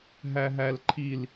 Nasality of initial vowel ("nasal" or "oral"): oral